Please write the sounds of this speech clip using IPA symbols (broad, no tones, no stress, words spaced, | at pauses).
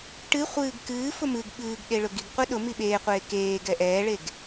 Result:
ʈɨ χʷɨːɡkɨːfʊ mɨɡ ɓɨːɡɗe ɭʊɡiɡqʷɨ ɗʊ miɓeːqʷeː keːɡɛ ʔɛːɭeɡ